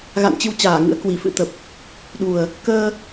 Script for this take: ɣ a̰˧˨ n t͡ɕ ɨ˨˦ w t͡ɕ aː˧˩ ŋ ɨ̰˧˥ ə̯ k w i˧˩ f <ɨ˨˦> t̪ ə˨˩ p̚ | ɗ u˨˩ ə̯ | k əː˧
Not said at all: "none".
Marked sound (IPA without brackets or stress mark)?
ɨ̰˧˥